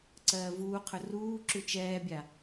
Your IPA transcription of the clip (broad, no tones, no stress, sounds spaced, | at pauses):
ǀ ɜː v uː qʰ ɵ r uː ǁ ʉ t͡ʃ ɛː bʲ a